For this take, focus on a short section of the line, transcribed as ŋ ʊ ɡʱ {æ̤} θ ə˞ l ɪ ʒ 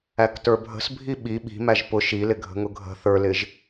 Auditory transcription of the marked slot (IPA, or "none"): ə̤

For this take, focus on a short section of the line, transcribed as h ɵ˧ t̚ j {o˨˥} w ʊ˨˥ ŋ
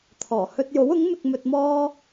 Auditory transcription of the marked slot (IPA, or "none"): o˨˥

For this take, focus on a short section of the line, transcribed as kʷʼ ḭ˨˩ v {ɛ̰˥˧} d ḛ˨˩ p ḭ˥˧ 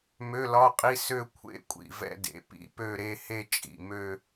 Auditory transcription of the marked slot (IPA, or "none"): ɛ̰˥˧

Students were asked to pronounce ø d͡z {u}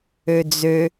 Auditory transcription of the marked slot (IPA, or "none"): ø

